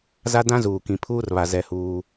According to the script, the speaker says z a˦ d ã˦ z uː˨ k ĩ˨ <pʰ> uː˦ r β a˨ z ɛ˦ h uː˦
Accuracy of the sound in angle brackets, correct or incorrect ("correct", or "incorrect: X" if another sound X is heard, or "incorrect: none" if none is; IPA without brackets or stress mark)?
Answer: correct